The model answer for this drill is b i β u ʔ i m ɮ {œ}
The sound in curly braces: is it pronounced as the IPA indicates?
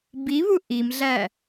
no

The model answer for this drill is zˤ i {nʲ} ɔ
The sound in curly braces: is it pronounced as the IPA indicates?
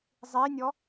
yes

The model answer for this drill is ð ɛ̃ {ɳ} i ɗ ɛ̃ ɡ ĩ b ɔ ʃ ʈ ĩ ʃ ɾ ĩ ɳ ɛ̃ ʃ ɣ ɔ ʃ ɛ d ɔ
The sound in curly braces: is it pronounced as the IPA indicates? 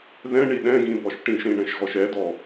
yes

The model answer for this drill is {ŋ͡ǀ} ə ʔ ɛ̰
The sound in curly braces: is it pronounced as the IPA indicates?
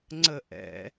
yes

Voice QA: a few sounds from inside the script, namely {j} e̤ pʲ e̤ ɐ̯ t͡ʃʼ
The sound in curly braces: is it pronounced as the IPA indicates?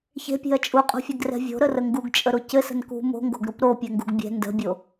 no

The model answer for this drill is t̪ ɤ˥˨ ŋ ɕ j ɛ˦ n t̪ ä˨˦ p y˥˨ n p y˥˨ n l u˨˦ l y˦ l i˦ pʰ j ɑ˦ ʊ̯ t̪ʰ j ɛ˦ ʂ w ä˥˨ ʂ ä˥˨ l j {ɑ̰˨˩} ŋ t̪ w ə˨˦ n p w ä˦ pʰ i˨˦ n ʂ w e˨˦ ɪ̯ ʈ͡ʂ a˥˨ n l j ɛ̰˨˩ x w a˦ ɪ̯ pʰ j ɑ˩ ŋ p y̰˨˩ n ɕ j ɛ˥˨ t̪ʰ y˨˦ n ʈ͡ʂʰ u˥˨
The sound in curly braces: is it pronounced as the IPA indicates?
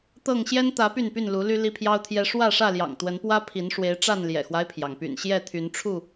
yes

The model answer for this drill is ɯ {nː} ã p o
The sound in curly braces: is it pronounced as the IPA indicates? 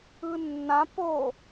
yes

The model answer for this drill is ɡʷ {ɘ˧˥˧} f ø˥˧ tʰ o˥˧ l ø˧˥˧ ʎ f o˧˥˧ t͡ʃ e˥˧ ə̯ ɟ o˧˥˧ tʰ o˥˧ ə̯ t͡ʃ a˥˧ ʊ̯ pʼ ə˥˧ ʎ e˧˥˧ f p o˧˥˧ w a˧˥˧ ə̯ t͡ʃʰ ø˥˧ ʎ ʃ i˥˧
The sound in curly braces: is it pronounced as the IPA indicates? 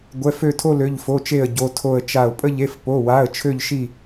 no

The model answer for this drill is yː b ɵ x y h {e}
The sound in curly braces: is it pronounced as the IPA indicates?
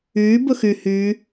no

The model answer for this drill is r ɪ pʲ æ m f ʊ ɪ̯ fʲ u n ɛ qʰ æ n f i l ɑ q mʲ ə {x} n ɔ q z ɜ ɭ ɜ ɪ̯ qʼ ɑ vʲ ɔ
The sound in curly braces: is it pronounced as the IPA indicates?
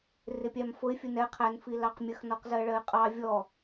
yes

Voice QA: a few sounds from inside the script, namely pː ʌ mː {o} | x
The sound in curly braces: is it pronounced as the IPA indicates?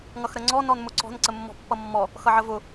no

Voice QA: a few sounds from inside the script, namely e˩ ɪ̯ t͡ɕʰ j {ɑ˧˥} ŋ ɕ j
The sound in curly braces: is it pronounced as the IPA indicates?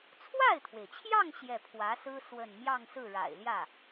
no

